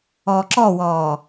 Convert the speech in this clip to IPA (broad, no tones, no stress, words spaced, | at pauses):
ɔːǁɔwɔː